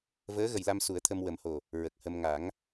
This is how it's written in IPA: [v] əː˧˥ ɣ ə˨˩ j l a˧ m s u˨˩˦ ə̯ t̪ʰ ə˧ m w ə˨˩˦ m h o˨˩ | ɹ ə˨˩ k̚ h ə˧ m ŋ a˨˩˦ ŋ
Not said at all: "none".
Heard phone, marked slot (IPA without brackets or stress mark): v